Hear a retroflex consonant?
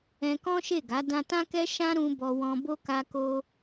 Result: no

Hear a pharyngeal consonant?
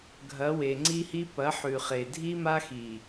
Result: yes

